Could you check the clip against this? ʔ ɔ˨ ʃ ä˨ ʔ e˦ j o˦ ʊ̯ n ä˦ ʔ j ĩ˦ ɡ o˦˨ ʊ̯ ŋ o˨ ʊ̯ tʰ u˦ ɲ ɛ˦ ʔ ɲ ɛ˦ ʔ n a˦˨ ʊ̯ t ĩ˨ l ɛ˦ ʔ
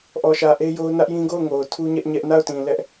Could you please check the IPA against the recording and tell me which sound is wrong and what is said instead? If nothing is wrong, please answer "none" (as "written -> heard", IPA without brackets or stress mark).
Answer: none